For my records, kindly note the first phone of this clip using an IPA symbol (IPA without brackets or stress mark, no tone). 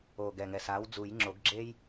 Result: oː